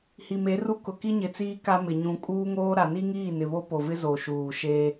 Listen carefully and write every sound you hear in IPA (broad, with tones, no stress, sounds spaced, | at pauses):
h i˨ m e˨˦ r u˦ k ʊ˨ k i˦ ɲ ɪ˨ t͡s iː˦ k a˦ m ɪ˨ ɲ ũ˨ kʼ uː˦ ŋ oː˦ ɾ a˨ n i˦ ŋ iː˦˨ n ɪ˨ β o˦ p o˨ v ɪ˦ z o˨ ʃ uː˨ ʃ e˦